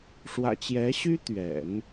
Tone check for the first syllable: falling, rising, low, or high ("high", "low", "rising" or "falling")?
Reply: low